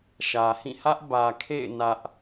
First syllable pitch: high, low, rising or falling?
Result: low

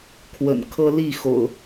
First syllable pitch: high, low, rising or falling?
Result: low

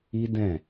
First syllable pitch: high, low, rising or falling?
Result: high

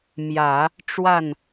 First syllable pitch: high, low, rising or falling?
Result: low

